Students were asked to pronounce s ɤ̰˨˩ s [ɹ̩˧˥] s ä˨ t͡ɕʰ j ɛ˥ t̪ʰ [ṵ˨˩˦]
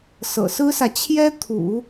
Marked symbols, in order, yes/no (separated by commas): no, yes